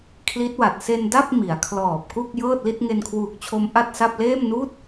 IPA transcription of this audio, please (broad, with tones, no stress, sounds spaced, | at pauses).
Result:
kʰ l i˦˥ t̚ w a˨˩ t̚ s e˧ n d a˥˩ p̚ m i˩˦ a̯ kʰ l ɔː˨˩ p̚ k u˥˩ k̚ j ɤː˥˩ t̚ l i˥˩ t̚ ŋ e˧ n kʰ w uː˨˩ k̚ t͡ɕʰ o˦˥ m ʔ a˥˩ t̚ s a˥˩ p̚ l eː˥˩ m n uː˥˩ t̚